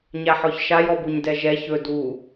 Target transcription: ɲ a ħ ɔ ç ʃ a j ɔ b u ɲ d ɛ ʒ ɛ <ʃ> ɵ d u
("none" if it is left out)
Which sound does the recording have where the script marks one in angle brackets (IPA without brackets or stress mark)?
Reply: ç